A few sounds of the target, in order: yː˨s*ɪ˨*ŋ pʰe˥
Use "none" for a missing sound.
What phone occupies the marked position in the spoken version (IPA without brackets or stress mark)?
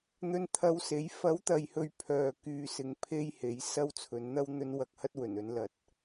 ɪ˨